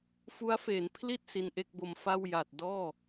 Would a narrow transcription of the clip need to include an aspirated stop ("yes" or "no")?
yes